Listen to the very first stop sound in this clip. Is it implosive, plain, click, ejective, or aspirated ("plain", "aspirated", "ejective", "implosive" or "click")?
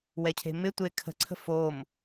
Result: aspirated